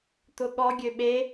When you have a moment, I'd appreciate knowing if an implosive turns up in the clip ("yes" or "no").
yes